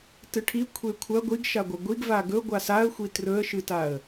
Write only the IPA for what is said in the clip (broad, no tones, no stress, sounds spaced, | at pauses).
t ɨ ʈʰ i kʷʰ e kʷʰ ɐ ɡʷ i ɡ ʃ a ɡʷ ɐ ɡʷ i ɡ v a ɡ ɵ ɡʷ a s a ə̯ xʷ i t r ɵ ə̯ ʃ ɨ t a ə̯